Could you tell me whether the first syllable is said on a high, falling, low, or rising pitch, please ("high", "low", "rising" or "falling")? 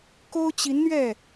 high